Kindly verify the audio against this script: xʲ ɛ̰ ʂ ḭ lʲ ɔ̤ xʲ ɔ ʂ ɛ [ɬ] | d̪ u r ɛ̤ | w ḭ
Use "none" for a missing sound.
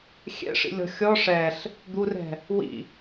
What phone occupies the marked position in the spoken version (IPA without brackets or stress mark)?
ɬ